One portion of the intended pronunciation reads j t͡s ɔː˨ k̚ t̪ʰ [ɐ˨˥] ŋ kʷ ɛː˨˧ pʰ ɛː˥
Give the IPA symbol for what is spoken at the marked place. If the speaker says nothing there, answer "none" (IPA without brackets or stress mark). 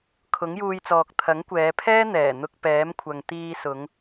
ɐ˨˥